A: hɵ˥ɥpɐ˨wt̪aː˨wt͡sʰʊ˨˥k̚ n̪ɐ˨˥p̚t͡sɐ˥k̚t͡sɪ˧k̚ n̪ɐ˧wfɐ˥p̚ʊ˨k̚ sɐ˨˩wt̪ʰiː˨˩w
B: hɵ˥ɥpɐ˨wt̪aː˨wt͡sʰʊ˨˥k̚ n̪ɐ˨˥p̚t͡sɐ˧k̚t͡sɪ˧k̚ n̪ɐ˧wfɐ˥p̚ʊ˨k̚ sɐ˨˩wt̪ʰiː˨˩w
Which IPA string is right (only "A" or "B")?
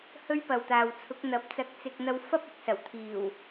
B